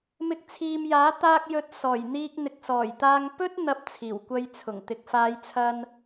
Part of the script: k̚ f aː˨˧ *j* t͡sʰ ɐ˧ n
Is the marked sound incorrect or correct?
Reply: correct